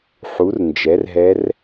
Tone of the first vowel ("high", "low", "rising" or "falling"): rising